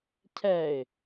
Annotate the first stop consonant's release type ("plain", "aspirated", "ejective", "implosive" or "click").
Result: aspirated